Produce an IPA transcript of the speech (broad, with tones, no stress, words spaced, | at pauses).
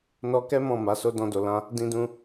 nɔ˧kɛ˦ mɔ̃˦˨ma˨˦so˦ dɔ̃˧do˨ lã˧ | dĩ˧dũ˧